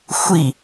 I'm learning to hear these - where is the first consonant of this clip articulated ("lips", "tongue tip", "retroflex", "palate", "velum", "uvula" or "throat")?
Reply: velum